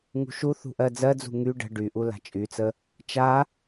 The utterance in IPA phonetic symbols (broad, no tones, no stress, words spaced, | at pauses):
ŋṳʃuθṳ ʔɜd͡zɜd͡zṳ ŋy ɖə̤ ɖyʔu la̤t͡ʃʼyt͡sə | t͡ʃa